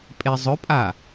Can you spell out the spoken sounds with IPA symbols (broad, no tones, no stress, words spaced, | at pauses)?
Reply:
pʼezˤɵpʼa